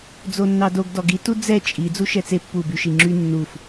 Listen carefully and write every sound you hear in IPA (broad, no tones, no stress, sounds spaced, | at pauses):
d͡z o nː ɑ d o ɡ d ɔ ɡ i t u d͡z ɛ t͡ʃʼ i d͡z u ʃ ɛ t͡s e pː u b y ʃ i ŋ͡ǁ y nː u f